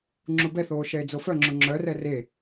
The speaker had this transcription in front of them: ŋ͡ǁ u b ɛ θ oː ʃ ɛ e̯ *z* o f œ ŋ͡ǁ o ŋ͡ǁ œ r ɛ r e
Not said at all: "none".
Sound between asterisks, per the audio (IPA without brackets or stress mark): d͡z